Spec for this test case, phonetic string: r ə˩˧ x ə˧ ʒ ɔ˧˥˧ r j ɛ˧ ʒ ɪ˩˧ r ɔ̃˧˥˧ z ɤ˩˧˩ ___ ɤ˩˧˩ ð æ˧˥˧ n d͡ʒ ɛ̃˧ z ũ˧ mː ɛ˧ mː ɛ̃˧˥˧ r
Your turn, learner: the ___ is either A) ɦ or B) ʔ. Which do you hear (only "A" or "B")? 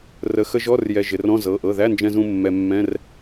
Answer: B